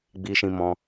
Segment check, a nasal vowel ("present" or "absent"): present